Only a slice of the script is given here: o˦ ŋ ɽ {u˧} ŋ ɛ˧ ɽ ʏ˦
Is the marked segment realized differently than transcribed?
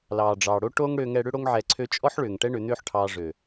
yes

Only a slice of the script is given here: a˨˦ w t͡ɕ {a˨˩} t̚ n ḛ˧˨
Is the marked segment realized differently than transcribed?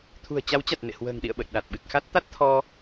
no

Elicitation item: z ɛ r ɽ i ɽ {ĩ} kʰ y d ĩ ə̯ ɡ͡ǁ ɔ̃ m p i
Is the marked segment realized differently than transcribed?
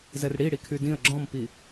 yes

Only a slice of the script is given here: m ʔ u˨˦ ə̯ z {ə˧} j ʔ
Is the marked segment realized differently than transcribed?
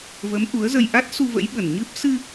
no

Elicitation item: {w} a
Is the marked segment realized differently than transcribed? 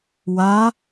no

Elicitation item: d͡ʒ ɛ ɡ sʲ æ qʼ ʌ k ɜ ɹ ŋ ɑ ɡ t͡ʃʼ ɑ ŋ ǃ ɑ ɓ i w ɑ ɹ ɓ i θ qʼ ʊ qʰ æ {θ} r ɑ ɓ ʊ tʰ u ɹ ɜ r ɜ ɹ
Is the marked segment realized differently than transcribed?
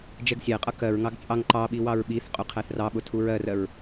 no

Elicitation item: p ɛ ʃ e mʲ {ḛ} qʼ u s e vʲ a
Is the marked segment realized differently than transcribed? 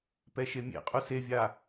no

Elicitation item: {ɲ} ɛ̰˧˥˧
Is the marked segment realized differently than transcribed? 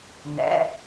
yes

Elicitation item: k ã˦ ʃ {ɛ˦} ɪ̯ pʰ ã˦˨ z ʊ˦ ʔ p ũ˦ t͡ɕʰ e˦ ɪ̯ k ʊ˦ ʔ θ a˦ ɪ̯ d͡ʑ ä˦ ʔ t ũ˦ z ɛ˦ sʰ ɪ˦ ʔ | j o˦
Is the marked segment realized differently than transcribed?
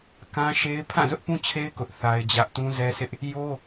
yes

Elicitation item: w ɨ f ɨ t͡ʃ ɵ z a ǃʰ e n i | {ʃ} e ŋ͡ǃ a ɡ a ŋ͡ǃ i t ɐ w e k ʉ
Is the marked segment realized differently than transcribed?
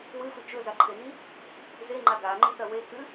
yes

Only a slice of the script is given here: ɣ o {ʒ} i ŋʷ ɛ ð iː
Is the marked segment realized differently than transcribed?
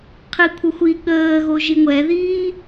no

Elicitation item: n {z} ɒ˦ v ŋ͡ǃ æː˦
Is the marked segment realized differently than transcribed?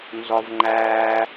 no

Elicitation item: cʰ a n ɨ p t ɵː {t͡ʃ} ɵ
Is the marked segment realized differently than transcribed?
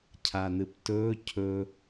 yes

